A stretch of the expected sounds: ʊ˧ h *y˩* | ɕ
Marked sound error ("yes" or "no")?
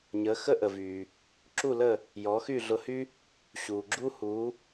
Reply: yes